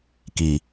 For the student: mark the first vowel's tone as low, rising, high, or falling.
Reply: low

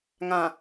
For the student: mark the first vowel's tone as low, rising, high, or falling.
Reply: low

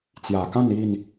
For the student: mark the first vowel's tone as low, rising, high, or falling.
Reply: low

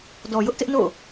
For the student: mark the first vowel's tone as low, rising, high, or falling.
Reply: low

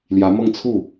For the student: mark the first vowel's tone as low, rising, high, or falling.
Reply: rising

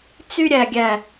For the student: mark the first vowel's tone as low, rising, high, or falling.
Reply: high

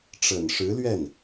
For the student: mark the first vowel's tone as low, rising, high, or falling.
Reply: low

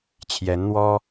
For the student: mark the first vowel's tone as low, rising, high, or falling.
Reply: rising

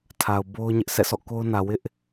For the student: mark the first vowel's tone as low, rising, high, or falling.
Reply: low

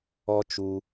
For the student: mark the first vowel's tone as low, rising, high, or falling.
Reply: high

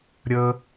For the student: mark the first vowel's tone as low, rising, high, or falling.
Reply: low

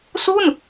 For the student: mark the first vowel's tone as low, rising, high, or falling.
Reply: falling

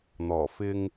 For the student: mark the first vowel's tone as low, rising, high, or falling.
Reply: low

